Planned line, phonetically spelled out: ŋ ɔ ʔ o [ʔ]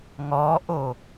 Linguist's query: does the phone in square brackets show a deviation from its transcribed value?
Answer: yes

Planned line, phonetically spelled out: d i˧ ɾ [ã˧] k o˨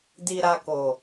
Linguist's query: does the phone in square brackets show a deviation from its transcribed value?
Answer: yes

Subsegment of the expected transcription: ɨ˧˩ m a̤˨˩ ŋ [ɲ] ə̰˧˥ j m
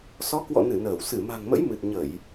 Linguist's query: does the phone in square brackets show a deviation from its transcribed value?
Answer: yes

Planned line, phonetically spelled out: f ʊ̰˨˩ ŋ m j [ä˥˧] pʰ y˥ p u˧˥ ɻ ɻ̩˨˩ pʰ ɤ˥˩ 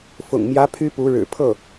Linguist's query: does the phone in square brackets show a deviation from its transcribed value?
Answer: yes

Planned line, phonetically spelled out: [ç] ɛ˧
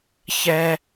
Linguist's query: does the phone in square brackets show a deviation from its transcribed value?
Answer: no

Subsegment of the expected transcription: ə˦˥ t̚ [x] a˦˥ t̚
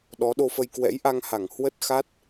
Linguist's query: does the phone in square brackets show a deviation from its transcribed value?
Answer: no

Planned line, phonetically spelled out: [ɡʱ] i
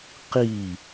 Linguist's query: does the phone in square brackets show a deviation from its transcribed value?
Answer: yes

